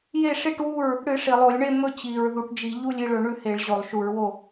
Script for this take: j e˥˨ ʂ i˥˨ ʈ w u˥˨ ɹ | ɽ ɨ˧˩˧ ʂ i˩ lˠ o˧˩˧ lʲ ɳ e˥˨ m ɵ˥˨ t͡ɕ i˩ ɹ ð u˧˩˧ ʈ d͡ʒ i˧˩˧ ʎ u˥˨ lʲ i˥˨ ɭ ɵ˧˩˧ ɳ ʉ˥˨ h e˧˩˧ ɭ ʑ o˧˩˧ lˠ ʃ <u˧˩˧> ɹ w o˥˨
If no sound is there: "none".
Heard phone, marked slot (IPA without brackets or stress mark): u˧˩˧